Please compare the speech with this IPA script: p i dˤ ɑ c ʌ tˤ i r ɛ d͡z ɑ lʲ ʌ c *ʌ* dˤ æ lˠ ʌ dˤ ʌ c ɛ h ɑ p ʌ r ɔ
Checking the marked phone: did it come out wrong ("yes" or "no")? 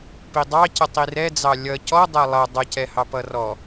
yes